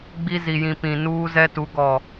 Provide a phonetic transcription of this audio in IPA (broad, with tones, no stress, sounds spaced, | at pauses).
ɡ͡b i˦ z i˨ j ĩ˨ p ĩ˨ n uː˦ z ɛ˦ t u˨˦ ɡ ɔ˨